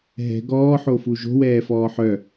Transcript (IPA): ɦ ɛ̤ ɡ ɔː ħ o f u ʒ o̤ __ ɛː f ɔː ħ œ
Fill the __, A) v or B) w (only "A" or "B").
B